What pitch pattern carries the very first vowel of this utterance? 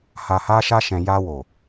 low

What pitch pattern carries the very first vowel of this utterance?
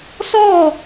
falling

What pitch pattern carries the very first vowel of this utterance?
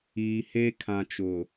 low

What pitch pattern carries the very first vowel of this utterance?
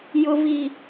high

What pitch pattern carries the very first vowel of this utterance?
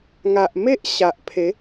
low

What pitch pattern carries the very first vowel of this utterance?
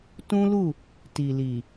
high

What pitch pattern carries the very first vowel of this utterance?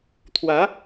rising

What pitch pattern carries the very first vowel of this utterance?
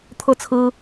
falling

